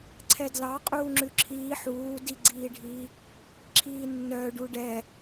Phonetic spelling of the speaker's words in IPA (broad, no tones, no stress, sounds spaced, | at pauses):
ǀʰ ɛ d l ɑ qʼ uː ŋ͡ǁ ʉ ǁʰ iː ħ uː d i ɡ͡ǀ iː ɖʱ iː | ǁʰ iː nː œ ɖ u ɖ ɛ